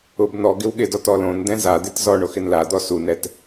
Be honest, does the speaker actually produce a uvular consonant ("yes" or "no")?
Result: no